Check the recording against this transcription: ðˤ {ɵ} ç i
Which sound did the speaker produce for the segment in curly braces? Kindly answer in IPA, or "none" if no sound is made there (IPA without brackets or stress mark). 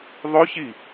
ɵ